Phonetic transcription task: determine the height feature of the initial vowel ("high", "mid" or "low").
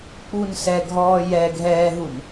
high